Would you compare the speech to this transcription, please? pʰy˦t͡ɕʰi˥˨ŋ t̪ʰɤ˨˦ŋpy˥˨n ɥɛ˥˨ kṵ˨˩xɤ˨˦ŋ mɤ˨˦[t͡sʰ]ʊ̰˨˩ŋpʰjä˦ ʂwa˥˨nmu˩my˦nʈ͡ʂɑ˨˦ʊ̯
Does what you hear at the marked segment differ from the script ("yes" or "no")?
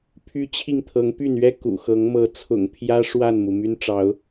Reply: no